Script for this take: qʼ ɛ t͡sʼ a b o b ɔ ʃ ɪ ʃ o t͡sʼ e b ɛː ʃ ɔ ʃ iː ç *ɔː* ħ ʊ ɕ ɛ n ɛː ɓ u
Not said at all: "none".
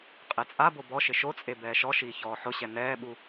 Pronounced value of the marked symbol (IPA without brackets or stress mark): ɔː